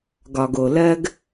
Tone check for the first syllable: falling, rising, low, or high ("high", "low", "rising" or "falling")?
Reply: low